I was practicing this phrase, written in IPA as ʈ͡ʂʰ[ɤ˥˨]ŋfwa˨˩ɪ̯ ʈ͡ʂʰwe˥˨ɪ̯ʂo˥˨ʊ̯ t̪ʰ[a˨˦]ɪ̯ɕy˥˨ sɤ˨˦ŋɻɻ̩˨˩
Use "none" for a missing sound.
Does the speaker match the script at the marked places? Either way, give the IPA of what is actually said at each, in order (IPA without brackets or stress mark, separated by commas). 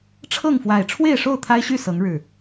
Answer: ɤ˥˨, a˦